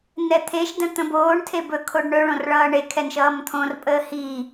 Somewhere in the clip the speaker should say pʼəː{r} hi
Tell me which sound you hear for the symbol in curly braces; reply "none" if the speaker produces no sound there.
none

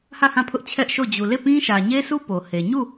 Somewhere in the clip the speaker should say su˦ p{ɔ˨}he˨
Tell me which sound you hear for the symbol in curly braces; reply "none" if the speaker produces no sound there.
o˨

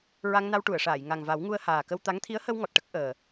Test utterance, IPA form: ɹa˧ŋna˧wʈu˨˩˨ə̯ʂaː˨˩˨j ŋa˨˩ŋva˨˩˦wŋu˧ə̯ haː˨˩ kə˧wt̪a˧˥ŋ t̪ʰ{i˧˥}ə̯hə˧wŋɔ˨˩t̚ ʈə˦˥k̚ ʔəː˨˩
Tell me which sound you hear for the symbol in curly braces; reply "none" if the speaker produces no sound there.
i˧˥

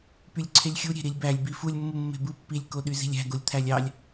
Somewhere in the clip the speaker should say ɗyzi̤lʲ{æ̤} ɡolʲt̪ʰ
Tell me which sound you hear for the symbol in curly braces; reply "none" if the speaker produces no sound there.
æ̤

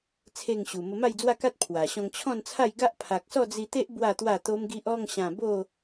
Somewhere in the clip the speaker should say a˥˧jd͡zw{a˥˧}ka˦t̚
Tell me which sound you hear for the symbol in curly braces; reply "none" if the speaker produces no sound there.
a˥˧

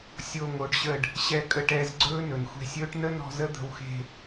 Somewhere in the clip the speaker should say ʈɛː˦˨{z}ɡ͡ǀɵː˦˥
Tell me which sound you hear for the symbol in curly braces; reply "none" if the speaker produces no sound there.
z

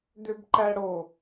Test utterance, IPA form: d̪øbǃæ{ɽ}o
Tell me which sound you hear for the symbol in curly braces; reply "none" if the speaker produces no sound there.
ɽ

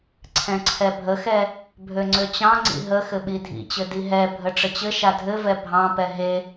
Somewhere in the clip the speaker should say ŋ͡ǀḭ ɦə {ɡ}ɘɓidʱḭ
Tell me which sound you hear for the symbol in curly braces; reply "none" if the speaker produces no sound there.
x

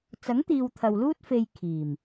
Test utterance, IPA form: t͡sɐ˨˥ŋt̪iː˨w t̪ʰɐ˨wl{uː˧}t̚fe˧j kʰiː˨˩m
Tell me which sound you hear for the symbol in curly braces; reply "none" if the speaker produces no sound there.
uː˥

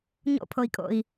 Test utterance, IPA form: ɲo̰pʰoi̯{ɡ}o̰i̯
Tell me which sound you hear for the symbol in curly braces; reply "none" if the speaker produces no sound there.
kʼ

